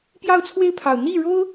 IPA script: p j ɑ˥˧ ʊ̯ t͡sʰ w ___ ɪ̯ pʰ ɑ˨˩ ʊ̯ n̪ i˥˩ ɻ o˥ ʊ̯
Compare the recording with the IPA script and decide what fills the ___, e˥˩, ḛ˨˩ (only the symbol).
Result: e˥˩